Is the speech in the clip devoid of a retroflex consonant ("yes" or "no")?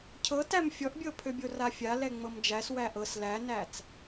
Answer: yes